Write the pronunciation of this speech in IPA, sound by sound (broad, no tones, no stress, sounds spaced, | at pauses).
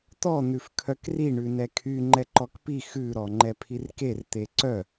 t̪ ɔ n̪ ʉ f kʰ œ k r i ɳ ʉ n ɛ kʰ y ŋ͡ǃ ɛ ǃ ɔ k p i x ʉ ɾ ɔ ŋ͡ǃ ɛ pʰ i r k e r t̪ e ǀ œ